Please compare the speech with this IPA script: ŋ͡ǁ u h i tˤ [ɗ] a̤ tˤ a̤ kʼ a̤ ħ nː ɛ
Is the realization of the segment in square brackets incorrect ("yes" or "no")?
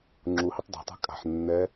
yes